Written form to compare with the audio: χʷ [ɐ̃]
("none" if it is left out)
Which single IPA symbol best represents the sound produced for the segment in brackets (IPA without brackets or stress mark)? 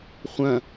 ɐ̃